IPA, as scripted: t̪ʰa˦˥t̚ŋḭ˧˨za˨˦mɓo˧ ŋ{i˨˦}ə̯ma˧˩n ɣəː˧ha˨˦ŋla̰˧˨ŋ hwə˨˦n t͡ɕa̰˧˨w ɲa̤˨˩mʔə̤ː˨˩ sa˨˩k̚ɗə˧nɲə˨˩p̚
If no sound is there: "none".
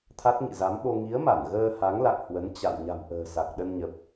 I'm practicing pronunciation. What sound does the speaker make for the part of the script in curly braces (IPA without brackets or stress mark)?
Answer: i˨˦